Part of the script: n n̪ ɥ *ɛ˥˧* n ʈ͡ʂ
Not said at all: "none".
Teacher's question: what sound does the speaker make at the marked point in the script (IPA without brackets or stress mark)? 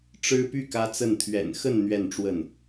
ɛ˥˧